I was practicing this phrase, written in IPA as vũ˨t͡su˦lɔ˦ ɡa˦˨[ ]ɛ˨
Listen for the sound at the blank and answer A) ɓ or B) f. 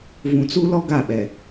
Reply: A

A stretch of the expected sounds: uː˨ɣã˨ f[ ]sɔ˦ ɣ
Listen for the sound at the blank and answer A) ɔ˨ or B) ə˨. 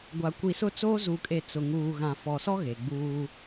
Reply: A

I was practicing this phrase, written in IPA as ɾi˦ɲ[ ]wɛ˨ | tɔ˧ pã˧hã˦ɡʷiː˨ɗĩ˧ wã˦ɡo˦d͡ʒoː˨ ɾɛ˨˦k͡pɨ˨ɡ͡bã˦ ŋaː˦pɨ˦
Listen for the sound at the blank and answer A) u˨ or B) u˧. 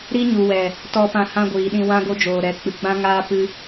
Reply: A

